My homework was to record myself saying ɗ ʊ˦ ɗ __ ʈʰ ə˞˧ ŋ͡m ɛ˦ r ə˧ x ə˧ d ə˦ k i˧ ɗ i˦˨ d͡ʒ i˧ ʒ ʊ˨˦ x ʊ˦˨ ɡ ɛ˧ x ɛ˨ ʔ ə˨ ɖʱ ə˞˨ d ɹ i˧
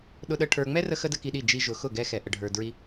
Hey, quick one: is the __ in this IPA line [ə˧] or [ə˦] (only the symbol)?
ə˦